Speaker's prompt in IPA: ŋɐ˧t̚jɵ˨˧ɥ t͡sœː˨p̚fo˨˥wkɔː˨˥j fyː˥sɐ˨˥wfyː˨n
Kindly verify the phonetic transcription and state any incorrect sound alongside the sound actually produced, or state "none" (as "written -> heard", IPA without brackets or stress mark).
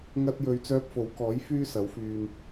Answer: œː˨ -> œː˧